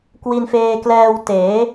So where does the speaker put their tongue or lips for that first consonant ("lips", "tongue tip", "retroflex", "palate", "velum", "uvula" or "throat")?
velum